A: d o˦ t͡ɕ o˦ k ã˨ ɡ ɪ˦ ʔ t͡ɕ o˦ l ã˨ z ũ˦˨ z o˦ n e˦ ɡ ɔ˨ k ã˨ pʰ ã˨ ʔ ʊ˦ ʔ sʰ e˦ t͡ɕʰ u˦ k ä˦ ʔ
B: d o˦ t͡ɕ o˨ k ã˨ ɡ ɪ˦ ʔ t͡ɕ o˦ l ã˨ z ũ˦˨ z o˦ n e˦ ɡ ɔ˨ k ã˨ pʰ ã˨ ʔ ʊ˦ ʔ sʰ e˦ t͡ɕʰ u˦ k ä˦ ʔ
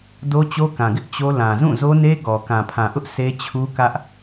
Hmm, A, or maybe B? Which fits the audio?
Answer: A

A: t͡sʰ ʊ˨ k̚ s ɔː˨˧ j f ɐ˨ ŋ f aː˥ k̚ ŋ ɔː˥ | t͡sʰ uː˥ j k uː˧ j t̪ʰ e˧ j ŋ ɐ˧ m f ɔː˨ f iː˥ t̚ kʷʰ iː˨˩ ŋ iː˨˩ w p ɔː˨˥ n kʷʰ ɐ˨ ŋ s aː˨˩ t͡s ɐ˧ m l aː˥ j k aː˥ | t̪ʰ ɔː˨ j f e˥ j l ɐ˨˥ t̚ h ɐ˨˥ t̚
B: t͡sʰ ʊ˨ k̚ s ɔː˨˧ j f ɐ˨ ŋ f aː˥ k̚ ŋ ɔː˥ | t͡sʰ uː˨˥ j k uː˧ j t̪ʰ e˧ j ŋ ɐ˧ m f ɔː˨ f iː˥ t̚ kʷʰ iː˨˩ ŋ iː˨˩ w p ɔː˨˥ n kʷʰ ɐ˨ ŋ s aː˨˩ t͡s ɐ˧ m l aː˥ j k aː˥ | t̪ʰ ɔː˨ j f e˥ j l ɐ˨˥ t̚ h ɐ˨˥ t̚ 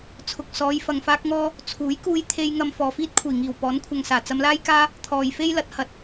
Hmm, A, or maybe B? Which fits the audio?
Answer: B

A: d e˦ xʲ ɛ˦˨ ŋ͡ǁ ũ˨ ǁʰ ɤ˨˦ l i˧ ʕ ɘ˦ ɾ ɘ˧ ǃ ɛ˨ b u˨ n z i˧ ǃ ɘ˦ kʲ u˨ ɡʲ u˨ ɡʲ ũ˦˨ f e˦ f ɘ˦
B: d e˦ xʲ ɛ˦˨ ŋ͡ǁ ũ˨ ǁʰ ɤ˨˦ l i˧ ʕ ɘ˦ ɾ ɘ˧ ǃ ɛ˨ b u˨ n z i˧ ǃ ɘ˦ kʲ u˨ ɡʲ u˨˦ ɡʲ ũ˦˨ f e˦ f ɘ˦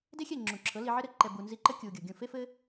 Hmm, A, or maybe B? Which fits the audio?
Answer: A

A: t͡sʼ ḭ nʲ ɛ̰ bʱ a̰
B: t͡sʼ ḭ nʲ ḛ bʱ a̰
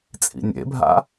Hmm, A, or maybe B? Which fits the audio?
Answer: B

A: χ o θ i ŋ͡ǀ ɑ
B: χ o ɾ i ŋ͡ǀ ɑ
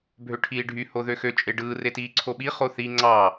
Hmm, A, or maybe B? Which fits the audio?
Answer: A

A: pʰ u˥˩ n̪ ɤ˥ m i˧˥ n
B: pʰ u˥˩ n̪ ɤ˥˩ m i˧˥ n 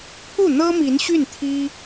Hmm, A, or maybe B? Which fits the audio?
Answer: A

